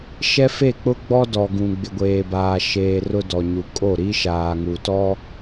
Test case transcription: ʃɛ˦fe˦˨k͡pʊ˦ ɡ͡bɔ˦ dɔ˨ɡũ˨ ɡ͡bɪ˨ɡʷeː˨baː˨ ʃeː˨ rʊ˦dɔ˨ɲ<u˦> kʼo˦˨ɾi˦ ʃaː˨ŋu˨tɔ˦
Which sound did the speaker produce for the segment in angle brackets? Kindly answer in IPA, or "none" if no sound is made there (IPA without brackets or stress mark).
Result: u˨